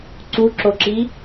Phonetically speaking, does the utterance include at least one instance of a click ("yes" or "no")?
yes